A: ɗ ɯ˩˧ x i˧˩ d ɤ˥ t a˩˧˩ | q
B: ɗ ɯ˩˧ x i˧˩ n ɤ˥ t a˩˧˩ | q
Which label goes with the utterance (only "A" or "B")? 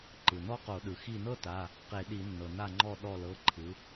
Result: B